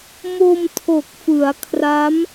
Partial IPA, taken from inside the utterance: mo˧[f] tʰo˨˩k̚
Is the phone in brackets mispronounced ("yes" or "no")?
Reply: yes